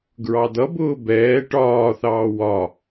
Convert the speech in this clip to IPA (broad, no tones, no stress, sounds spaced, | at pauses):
ɡ ɹ ɑ d̪ ʌ b ʊː b ɛː ʈ ɒː θ ɑː w ɒ